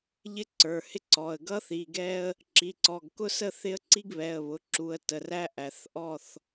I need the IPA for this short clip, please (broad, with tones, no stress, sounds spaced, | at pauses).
ʎ ɪ˦ ǀ ə˞˩˧˩ h ɪ˦ ǀ ɔ˩˧˩ ə̯ ɡ ʌ˦ θ i˩˧˩ ɡ ɛ˦ ə̯ | ǁ i˩˧˩ ǀ ɔ˩˧˩ ɡ k ʊ˥˨ s ə˥˨ θ ɪ˦ ə̯ ǀ i˦ ɡ β ɛ˩˧˩ ə̯ β ʊ˩˧˩ ǁ u˩˧˩ ə̯ t ə˩˧˩ r æ˦ ʔ æ˩˧˩ θ ʔ ɔ˥˨ θ